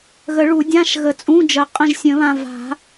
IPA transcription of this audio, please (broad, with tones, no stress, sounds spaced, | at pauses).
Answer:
ɣ ə˨˩˦ ɭ u˨˩˦ dʲ ã˧˥˧ ʃ ɣ ə˨ t͡sʼ ũ˧˥˧ d͡ʒ ə˨˩˦ qʼ ə̃˦˨ ʒ sʲ ə̃˨˩˦ β ã˨ v a̤˨˩˦